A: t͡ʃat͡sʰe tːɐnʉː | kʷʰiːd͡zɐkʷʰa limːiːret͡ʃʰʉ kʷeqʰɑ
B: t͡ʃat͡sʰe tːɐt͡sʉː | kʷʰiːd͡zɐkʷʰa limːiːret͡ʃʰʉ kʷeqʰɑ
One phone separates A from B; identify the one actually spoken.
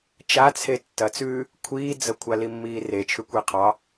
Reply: B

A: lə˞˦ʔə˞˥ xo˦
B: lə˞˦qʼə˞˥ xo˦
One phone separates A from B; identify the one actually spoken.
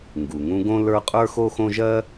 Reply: B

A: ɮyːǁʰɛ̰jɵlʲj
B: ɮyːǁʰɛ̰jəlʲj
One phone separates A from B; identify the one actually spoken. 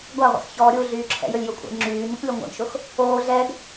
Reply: A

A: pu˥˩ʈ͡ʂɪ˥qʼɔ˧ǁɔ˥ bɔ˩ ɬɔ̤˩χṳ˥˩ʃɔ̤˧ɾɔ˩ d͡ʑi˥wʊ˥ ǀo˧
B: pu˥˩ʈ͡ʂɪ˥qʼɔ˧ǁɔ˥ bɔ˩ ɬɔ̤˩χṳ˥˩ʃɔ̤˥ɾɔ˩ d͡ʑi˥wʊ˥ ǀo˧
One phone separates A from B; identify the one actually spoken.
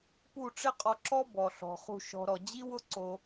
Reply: A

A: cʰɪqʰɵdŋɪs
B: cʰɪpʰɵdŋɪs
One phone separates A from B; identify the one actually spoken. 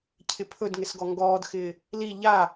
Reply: B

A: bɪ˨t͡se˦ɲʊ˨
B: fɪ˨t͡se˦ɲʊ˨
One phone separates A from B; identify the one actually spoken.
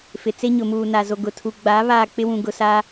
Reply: B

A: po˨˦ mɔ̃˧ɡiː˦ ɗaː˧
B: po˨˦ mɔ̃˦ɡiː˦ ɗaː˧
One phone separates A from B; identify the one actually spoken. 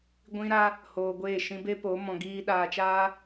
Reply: A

